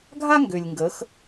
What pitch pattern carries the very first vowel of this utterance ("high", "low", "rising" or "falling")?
high